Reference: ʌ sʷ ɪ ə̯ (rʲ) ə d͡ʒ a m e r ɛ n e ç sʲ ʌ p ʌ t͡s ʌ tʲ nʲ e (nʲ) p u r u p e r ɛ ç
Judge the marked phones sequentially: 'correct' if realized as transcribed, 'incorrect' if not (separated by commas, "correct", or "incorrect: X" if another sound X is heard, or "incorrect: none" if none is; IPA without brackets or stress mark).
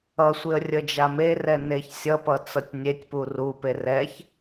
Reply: correct, incorrect: tʲ